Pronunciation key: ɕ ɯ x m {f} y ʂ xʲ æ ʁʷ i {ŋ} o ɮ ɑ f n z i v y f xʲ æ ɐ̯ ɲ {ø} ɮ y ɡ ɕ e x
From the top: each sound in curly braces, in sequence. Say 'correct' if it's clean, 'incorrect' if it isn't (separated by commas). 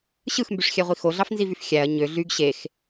incorrect, incorrect, correct